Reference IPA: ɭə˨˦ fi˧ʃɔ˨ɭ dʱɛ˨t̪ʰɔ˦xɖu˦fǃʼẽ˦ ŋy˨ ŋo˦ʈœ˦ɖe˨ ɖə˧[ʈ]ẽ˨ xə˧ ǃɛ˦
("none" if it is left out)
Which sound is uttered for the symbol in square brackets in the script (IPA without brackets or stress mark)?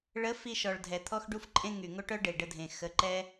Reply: dʱ